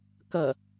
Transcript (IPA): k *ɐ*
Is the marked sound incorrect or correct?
correct